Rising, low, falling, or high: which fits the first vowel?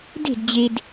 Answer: falling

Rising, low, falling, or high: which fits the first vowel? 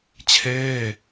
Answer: falling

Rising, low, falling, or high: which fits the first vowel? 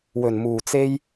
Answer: low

